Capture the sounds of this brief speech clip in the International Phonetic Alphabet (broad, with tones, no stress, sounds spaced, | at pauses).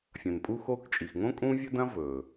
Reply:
fʲ ɐ̃˩ n pʼ u˧ x o˧ k t͡ʃʼ i˩ x ŋ õ˥ kʼ ũ˥ vʲ ɵ˥ d ɐ̃˥ v ɵ˩